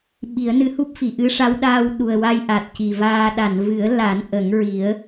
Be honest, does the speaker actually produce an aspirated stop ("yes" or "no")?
no